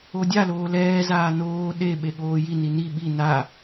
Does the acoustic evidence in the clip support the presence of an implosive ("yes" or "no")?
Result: yes